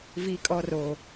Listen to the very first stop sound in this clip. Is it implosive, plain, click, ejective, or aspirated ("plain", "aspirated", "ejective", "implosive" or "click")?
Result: ejective